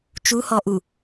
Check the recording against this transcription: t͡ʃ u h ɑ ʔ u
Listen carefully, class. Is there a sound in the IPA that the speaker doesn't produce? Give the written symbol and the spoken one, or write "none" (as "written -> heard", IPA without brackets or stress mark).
ɑ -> ɔ